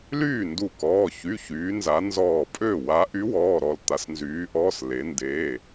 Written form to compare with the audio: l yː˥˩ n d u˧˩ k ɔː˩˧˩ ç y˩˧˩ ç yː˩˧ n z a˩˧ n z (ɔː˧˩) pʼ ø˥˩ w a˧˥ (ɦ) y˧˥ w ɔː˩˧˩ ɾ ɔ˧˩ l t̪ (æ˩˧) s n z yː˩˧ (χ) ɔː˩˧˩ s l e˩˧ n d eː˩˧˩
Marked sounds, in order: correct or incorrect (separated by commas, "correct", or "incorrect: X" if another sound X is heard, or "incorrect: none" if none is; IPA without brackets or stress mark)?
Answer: correct, incorrect: ʔ, incorrect: a˩˧, incorrect: ʔ